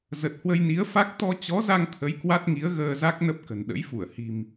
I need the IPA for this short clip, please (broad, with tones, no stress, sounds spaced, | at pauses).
z ə˨˩ t̚ h w ə˧ j n i˨˦ ə̯ f a˦˥ k̚ t̪ ɔ˧ t͡ɕ ɔ˨˦ z a˧ ŋ t̪ʰ ə˨˦ j k w a˦˥ t̚ ŋ i˨˦ ə̯ ɣ əː˧ z a˦˥ k̚ n ə˦˥ p̚ k ə̤˨˩ n ɗ ə̰˧˥ j f u˧˩ ə̯ h i̤˨˩ m